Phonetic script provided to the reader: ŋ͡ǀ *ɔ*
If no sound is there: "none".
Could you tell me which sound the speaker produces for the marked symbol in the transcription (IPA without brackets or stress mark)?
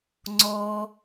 ɔ